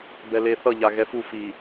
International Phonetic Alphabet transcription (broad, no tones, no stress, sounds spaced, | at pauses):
b ɛ l e θ ʌ ʎ a ɣ ɛ f u f i